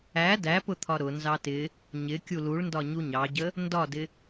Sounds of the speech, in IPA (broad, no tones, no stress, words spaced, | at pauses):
æ dæpʊt̪ʰɒ ɾʊ nzɑtɪ | ɲɪ kʲuluɭndɒɲu ɲɑɟə | ndɒdɪ